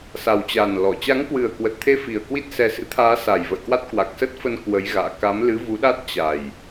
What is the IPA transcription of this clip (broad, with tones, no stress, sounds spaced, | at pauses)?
s a˨˩ w t͡ɕ a˨˩ n l ɔ˧˩ t͡ɕ a˨˦ ŋ k w ɨ˨˩ ə̯ k w ə˨˩ t̚ t̪ʰ e˧ f i˨˩ ə̯ k w i˦˥ t̚ s ɛ˨˦ s ɨ̰˧˥ t̪ʰ aː˨˦ s a˨˩ j v ə̰˧˨ j k w a˦˥ t̚ k w a˨˩ k̚ s ə˦˥ t̚ f ə˧ n k w ə˨˦ j ɣ a̰ː˧˨ k a˨˦ m l ɨ˨˦ v u˨˦ ɗ a˦˥ t̚ t͡ɕ a˨˩ j